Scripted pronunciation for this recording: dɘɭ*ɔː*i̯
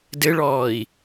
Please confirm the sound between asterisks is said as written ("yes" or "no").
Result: yes